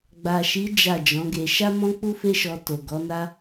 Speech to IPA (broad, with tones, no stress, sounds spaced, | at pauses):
ɡ͡b a˨ ʃ i˨˦ d͡ʒ a˦˨ d͡ʒ ɔ̃˨˦ ɡ e˧ ʃ a˦ m ɔ̃˦ k͡p u˦ f e˦ ʃ ɔ˧ t o˨ ɡ ɔ˨˦ n a˦